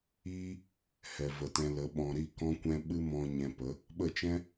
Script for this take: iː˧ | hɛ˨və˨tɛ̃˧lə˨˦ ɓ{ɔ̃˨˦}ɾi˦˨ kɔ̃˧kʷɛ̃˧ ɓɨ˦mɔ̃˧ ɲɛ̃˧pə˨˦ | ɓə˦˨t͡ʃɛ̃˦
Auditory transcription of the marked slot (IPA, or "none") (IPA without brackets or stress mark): ɔ̃˨